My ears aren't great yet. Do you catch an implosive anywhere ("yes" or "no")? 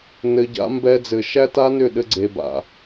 yes